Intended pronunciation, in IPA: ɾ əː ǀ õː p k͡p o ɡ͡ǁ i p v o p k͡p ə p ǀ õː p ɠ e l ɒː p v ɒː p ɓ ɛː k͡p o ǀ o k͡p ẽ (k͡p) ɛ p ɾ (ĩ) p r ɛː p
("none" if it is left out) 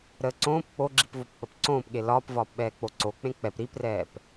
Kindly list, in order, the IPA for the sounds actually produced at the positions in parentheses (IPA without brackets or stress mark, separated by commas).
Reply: k͡p, i